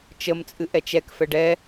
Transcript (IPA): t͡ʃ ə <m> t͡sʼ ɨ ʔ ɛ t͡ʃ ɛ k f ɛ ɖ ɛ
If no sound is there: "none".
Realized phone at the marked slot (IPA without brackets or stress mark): m